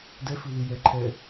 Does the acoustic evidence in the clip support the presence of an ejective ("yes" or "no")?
no